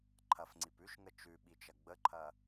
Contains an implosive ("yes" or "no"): yes